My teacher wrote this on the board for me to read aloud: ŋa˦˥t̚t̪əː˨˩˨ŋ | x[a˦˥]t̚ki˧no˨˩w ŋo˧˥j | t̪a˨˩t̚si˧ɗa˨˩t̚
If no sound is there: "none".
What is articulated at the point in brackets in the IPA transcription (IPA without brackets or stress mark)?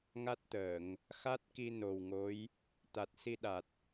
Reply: a˦˥